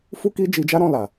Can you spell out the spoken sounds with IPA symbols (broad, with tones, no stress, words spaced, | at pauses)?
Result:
fu˦ki˦d͡ʒi˧d͡ʒa˦ ɾɔ̃˦˨la˨